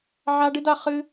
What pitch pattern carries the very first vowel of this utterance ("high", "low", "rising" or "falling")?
high